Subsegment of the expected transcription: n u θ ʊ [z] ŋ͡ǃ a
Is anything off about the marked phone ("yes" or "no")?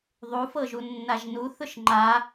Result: yes